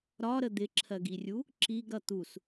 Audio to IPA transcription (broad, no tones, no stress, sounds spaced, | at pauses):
ɾ ɒ ɾ ə d̪ ɪ ǁʰ ɜ ɡ i rʲ u | ǁ i ɡ ɾ ʌ t̪ u s